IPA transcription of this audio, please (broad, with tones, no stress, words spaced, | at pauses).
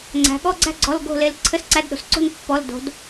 ŋ͡ǀæ̤˩˧ɠɔ˧˥˧ɡ͡ǀæ̤˥˨ ɡ͡ǀɔ˧˥˧lɡo̤˥˨le˧˥l ǀʰɘ˧˥˧sǀæ˧˥˧dɗo̤˩s ǀo̤˥˨n pːɔ˧˥˧ldo̤˧˥d